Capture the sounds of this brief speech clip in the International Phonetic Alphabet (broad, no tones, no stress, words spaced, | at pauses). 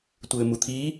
tʷɘːmut̪ʰi